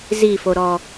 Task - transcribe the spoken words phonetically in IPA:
z i f o ɾ ɔ

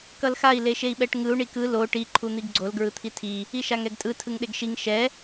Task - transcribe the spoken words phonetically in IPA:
k ʌ l x a i̯ l e ʃ e i̯ ɓ ɛ ʈ ŋ ɯ u̯ ɳ i k ɯ l o ʈ i ǃʰ u n̪ i ɡ ɡ͡ǀ o l ɡ ɹ ɯ t̪ʰ i tʰ i | i ʃ a ŋ ɛ ɡ tʼ ɯ tʰ ɯ ŋ ɗ e ɡ ʃ i ŋ ʃ ɛ

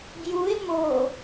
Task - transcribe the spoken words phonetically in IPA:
ɡ j u e̯ m o

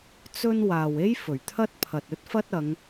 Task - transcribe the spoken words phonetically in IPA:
t͡s ɵ˥ n w aː˨ w e˥ j f ɵ˨˩ ɥ t̪ʰ ɐ˥ t̚ pʰ ɐ˨ t̚ ɵ˥ t̚ f ɐ˥ t̚ ɐ˨˧ ŋ

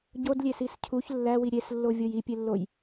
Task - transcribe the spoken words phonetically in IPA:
ɟ o d lʲ e s i s cʰ u ç lː æ w i ɾʲ e s lː o vʲ o j i pʲ e lː o j

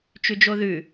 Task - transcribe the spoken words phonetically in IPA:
t͡ʃ ʉ d͡ʒ o ð ʉ

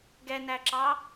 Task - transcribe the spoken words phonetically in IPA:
ɡ ɛ n æ ǁ ɑ

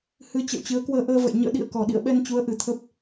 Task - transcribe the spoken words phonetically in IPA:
h ɨ˨˦ t͡ɕ ə̰˧˨ w t͡ɕ ɨ˨˦ ə̯ k w əː˧ ʔ əː˧ v ə̰˧˨ j ɲ ə̰ː˧˨ ɗ ḭ˧˨ ə̯ k ɔ˨˩ ɗ ḭ˧˨ ə̯ ɓ ɛ˧ n t͡ɕ u˨˦ ə̯ ʔ ɨ˨˩ t̪ʰ ə˦˥ p̚

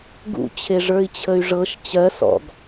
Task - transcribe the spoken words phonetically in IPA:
ɡ ṵ t͡ɕʰ e ʐ ə˞ i̯ t͡ɕʰ ə y̯ ʐ ɤ ʃ t͡ɕ ɜ s ɔ̰ ɡ

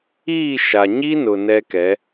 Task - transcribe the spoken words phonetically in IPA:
iː˦˨ ʃ a˨ ɲ i˦ n ʊ˨ n ɛ˦ k ɛ˨˦

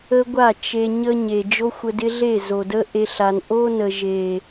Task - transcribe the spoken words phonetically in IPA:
ə˦ ɡʷ a˦˨ t͡ʃ e˧ ɲ ə˦ ɲ e˨ d͡ʒ o˦ xʷ ə˧ d ɪ˦ ɮ e˦˨ z o˨ d ə˦ ʔ e˧ ɬ a˨ n ʔ o˦ n ə˨ ʒ e˨

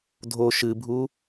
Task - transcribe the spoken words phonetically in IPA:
dʱ o ʃ ɨ bʱ u

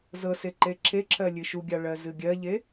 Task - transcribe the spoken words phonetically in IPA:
z ɤ s e ǃ e ǁʰ e ǁʰ ɜ lʲ ɨ ʃ u ɡʲ ɑ ɭ ɜ z ɨ ɡʲ ɜ ʎ e

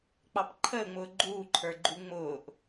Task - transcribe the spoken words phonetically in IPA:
k͡p ɑ p ǃʰ əː ŋ͡m ʊː ɡ͡ǃ uː ǃʰ ə˞ ɡ͡ǃ u ŋ͡m ʊː ʔ

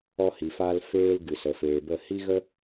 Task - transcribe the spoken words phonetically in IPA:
ɔ˧ h i˨ f aː˧ l f eː˦ l ɡ ɨ˨ s ə˨ f eː˨ b ə˦˨ h i˦ ɣ ə˦

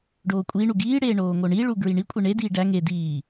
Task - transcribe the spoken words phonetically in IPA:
ɖ oː kʷʼ iː ɳ u ɡ iː ɽ eː ɳ oː ŋ o ɳ i ɭ u ɡ ɹ i ɳ i kʷʼ e ɳ e d iː ɖ æ ŋ e d iː

